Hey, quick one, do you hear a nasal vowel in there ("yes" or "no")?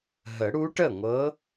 no